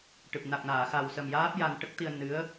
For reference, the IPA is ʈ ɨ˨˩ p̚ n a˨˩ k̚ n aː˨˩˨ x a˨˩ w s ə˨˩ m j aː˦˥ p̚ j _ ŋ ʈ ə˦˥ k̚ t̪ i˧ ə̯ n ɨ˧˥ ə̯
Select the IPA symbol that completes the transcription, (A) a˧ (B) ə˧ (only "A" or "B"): A